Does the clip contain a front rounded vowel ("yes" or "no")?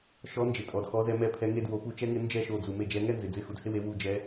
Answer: no